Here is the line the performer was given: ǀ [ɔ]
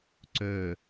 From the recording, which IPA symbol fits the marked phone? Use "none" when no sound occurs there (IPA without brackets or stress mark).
ɵ